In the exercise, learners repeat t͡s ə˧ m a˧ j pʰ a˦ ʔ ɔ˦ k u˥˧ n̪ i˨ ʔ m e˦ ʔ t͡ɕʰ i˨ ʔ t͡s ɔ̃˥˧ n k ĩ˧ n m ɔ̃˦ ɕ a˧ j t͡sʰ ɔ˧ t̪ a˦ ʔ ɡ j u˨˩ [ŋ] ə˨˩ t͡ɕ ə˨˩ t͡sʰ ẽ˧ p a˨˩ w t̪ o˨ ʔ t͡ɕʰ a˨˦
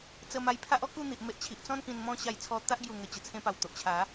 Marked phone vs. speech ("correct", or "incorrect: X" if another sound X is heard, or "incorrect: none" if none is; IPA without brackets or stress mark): correct